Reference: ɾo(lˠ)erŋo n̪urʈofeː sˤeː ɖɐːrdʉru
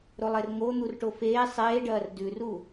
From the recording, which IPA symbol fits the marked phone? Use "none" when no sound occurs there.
lˠ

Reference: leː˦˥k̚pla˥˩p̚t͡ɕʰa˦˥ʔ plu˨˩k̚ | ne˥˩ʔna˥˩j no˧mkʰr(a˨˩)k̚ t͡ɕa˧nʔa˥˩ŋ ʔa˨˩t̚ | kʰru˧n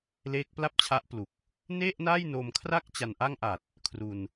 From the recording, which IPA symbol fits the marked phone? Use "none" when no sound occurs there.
a˥˩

